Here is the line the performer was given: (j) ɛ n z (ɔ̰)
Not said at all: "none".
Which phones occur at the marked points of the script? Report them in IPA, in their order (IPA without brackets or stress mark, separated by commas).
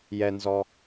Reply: j, ɔ